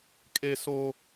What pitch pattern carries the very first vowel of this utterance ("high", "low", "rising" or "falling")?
high